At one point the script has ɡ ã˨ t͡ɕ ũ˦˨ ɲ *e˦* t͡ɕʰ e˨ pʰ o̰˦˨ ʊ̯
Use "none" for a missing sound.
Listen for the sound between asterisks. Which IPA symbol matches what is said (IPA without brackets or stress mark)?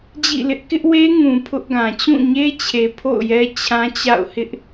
e˦